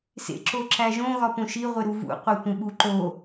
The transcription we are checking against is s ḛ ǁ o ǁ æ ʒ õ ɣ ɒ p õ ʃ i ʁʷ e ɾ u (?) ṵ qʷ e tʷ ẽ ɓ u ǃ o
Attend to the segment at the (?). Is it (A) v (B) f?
A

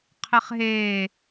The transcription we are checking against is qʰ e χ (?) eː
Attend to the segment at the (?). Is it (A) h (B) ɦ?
B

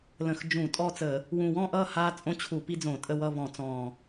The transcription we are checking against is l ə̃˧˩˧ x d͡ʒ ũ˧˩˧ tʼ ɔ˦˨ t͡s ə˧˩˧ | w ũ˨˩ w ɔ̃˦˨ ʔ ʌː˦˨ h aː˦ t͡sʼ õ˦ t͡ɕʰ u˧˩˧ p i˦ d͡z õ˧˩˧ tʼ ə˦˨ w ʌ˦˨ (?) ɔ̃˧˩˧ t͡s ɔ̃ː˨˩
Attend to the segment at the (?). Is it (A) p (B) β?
B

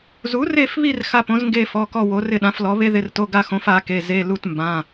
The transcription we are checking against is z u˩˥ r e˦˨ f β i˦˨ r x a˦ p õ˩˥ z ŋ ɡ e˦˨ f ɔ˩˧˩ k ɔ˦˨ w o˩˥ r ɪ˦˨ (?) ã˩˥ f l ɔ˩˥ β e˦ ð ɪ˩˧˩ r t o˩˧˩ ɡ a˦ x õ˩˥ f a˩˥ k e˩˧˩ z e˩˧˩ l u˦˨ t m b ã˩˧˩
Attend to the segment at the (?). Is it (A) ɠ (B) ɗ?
B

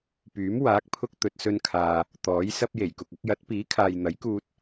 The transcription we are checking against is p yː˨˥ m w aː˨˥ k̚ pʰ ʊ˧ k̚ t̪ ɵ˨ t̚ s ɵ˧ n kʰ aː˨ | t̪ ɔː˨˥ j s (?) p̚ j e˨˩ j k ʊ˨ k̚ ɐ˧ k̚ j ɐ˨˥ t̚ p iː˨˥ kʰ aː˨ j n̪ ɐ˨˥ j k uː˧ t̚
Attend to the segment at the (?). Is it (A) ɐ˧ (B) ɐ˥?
B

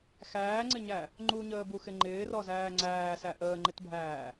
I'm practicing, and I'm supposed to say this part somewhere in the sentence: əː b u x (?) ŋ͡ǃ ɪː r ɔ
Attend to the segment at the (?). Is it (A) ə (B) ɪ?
B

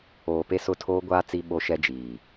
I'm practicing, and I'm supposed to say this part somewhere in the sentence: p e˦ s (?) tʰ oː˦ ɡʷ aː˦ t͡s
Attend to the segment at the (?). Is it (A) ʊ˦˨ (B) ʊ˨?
A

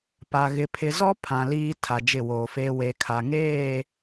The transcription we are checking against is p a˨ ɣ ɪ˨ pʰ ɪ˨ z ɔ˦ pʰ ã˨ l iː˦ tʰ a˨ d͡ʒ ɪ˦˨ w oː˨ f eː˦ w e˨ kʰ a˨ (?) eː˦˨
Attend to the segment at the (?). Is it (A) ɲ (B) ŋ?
B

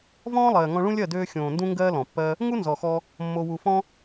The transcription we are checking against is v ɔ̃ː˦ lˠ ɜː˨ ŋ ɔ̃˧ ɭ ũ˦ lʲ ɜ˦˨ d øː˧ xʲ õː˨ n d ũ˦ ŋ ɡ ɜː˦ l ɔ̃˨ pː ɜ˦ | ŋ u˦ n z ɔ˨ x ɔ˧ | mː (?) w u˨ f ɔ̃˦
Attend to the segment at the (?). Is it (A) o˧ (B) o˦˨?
A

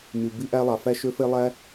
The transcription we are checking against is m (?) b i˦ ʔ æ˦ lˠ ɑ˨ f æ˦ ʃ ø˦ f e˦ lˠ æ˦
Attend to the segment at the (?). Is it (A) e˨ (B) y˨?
B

